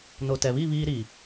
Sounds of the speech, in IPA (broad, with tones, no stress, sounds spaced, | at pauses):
n o˨ t ɛ˨ β i˦˨ β iː˦ ɾ iː˨